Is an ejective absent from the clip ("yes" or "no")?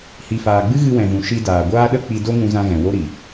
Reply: yes